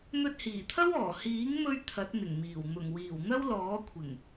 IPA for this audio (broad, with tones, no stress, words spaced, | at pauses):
n̪ɵ˧t̚hiː˨˩t̪ʰɐ˥wɔː˨˩ hiː˨˥ŋmɵ˧ɥ t̪ʰɐ˨˥t̚n̪ɪ˨˩ŋmiː˨˩w n̪ʊ˨˩ŋwiː˨˩w n̪ɐ˥wlɔː˨˥kʷʰɪ˨˩ŋ